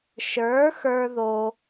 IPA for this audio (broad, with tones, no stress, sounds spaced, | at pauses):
ʃ ə˞˩˥ x ə˞˥ ð o˧